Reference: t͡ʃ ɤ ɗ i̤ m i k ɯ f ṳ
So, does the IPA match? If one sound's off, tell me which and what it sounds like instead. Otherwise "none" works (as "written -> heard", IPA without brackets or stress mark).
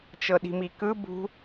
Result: f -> b